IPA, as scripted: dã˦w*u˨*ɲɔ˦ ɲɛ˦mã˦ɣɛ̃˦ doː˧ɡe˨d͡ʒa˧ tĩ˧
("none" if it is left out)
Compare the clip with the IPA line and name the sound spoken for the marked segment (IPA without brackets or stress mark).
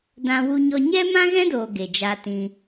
u˦